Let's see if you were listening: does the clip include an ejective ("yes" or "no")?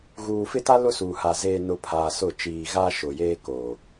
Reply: no